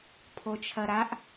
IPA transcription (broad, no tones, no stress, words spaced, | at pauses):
pʰot͡ʃʰɐɾaʔ